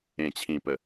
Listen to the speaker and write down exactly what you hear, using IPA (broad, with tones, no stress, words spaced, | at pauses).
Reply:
ẽ˨˩t͡ɕʰĩ˨˩pə˨˩